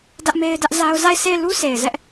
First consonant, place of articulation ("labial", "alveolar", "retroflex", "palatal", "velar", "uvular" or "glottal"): alveolar